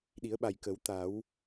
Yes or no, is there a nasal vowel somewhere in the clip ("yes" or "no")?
no